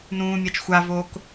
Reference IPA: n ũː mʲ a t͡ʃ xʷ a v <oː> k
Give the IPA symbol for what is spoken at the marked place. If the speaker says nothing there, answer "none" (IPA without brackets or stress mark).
oː